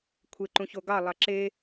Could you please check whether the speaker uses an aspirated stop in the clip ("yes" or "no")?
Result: yes